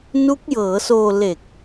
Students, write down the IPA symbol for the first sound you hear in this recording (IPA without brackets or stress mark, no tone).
n